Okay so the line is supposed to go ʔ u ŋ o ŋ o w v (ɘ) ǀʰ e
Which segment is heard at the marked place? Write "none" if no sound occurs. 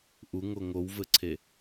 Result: ɘ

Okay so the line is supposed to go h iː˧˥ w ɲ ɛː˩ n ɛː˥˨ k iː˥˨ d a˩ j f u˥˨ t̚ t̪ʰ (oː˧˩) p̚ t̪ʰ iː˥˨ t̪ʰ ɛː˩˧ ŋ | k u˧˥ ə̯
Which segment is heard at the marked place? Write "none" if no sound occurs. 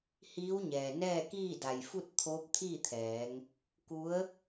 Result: oː˧˥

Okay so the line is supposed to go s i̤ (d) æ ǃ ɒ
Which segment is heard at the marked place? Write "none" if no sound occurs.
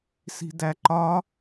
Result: d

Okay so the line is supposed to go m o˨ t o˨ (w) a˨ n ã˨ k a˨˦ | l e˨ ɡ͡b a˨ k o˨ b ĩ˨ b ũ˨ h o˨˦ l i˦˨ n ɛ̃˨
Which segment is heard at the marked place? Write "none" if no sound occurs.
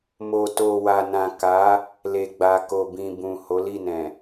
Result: w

